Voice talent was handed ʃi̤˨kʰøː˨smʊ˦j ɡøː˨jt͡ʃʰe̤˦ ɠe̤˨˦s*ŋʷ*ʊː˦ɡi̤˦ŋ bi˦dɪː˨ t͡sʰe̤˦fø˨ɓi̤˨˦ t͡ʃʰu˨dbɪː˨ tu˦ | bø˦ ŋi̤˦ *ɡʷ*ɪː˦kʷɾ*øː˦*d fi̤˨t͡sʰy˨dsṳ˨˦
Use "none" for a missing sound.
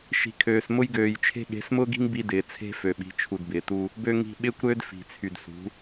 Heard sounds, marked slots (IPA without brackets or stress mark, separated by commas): m, ɓ, øː˦